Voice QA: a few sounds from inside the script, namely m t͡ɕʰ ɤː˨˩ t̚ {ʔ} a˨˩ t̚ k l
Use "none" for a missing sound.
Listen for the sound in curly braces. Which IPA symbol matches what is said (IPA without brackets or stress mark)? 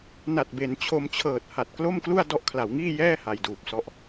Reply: h